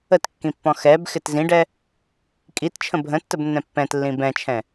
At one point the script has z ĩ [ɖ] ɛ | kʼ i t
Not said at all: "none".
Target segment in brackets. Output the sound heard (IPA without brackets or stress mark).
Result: ɖ